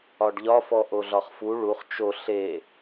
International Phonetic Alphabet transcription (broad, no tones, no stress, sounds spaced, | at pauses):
ɒ ɖ ʎ ɒ f ɔ ʔ o ɮ ɒ χ f u ɭ u χ t͡ʃ o ɬ e